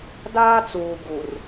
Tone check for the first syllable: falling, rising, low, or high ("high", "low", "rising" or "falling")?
high